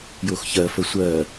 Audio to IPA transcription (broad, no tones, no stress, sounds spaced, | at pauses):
j o x ç ɜ f ə sʷ ɜ